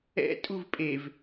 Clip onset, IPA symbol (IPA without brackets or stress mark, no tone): ɛ̰